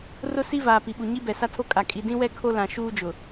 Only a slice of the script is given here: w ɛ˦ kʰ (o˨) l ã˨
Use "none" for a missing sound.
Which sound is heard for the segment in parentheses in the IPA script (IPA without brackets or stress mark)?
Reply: o˦